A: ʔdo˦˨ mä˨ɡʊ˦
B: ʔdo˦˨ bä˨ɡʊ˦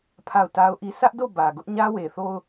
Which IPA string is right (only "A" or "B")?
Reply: B